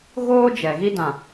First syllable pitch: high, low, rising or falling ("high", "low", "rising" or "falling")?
high